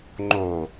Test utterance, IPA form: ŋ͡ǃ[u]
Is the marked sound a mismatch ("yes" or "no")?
yes